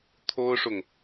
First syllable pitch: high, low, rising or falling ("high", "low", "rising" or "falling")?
high